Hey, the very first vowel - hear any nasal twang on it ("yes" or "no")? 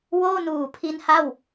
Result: no